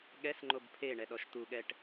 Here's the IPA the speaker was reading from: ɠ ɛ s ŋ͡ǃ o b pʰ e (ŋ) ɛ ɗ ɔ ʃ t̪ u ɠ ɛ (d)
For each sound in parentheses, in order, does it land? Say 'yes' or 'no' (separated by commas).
no, no